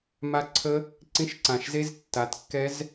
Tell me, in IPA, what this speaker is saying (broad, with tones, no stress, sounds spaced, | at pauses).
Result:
m a˦˥ ǀʰ ə˦˥ | ǀ ĩ˦˥ ʃ ǀ ã˧˩ ʃ z e˦˥ z tː a˨˥ t kː ɛ˦˥ z